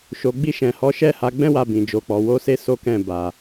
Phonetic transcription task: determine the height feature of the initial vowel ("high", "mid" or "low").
mid